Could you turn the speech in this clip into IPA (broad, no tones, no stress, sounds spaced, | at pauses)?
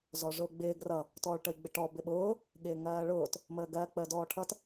z ɔ ʐ ʊː ɡ͡b ɪː ɡ r ʌ | t ɔː ɭ ʈ ə i̯ ɡ͡b ɪ ʈ ɔ b ɪ ɓ ʊː | ɠ ɪː ŋ ɜː ɭ ʊː t | m əː ɡ ɜ k͡p əː d ɔː ʈʰ ʌ t